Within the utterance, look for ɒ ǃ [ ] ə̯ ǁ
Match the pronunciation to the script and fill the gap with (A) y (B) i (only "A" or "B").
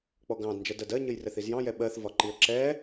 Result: B